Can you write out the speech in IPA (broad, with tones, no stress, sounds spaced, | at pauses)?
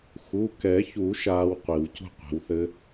x u˩˧˩ k ɛ˨˩˦ ç u˨˩˦ ʃ aː˦˥ w qʷ i˨˩˦ w c ṳ˥˧ qʷ e̤˨˦ w θ ɘ˦˥